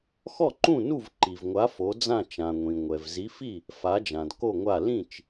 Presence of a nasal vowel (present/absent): present